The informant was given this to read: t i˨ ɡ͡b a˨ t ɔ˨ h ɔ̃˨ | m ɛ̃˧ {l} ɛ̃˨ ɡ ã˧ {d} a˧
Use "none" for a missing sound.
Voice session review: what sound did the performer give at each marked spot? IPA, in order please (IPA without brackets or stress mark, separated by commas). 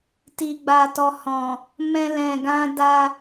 l, d